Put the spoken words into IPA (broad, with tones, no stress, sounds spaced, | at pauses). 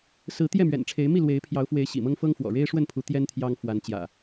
s ɹ̩˨˦ t̪ j ɛ˥˨ m ɥ ɛ̰˨˩ n ʈ͡ʂʰ e˨˦ ɪ̯ m i˥˨ l w e˨˦ ɪ̯ pʰ j ɑ˨˦ ʊ̯ f w e˨˦ ɪ̯ ɕ ḭ˨˩ m ɤ˦ ŋ f ɤ˦ ŋ f w ɔ̰˨˩ ɻ e˦ ɪ̯ ʂ w ə˥˨ n pʰ u˨˦ t̪ j ɛ˦ n t̪ʰ j ɑ˦ ŋ f w a˨˦ n t͡ɕ j ä̰˨˩